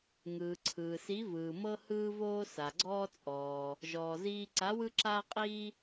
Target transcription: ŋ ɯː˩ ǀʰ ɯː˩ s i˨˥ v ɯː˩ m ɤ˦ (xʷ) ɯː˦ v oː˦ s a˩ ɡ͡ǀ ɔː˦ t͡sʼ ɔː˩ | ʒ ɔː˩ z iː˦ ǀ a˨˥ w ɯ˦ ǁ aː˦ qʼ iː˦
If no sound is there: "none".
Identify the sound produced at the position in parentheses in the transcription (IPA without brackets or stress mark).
h